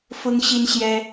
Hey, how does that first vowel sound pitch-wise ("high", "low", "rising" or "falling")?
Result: high